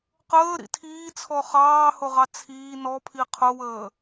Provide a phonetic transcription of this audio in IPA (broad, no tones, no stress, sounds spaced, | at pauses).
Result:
q əː ɾ ḭ tʰ iː t͡sʰ ɔ χ ɑː h ʊ ʁ ɑ t͡sʰ iː n ɔ pʰ i qʰ ʊ w əː